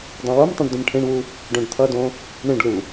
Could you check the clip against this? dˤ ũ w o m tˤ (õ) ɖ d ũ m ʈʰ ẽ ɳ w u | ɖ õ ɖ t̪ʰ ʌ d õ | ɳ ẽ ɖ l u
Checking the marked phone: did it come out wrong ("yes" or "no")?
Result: yes